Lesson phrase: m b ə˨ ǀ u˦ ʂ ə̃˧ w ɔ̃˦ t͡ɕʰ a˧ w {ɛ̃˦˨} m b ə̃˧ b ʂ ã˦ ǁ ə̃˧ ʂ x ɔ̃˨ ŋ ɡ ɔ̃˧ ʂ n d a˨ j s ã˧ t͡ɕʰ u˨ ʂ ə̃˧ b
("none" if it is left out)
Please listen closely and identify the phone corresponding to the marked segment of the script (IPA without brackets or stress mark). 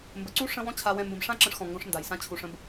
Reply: ɛ̃˧